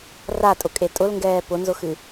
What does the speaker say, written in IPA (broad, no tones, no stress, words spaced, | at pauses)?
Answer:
ratʼʊkʼe tʼʊlŋɡɛː pʊnzʊxɨ